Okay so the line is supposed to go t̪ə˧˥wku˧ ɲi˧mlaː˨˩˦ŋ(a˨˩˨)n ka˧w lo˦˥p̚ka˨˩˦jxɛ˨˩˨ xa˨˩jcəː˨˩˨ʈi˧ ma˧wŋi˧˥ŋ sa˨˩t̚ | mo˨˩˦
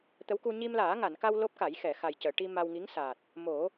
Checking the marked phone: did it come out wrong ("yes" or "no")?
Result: no